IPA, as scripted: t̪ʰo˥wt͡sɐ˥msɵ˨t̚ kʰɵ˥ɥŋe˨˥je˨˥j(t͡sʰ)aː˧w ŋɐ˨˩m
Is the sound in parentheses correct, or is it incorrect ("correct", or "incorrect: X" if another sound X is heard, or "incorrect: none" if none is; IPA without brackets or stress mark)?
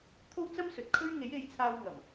correct